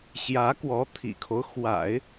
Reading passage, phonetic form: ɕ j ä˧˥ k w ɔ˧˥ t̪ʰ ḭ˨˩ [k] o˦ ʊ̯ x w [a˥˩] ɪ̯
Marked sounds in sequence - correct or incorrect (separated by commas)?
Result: incorrect, incorrect